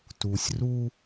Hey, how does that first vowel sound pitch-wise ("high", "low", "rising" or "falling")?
low